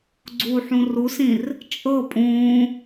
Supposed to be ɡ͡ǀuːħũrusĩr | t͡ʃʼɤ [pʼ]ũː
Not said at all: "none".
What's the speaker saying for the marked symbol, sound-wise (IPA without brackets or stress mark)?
pʼ